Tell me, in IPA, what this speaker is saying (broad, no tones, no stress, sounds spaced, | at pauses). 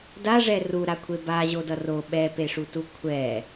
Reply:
d a ʐ ɛ r u ɾ a kʷʰ e b a ʑ o d ʌ r o ɓ ɛ p e ʂ u t u kʷʰ ɛ